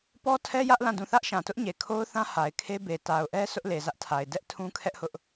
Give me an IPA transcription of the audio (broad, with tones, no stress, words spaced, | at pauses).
pɔ˦tʰɛ˦jä˦ʔ lã˦˨dũ˦˨ θä˦ʔʃã˨ tʊ˦ʔɲe˨kʰo˦ʊ̯θã˦ ha˨ɪ̯kʰe˦ be˨ ta˨ʊ̯ʔɛ˦ sʰʊ˦ʔ le˨zä˦ʔtʰa˨ɪ̯ dɛ˦ʔ tʰũ˦ kʰɛ˦ʔhʊ˦ʔ